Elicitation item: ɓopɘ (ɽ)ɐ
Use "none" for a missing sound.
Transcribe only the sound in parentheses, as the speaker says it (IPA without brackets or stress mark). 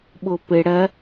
ɽ